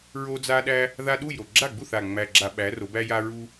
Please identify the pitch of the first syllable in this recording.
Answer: high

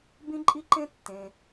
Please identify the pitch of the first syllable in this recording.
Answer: high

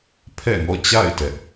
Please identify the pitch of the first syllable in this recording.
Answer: falling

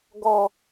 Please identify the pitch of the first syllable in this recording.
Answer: high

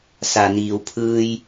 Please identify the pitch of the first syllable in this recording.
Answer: low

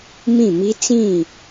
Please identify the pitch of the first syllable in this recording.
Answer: falling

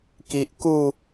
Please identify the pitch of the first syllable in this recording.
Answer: low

